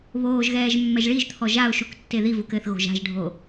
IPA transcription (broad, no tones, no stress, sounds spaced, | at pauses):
β oː ʒ ɣ ɛː ʒ mː ɛ ʒ ɭ i ʒ t̪ʰ ɔ ʒ a ʊ̯ ʃ u k tː e ð i v u k ɘ θ ɣ o̤ ʒ a̤ ʒ ɖʱ o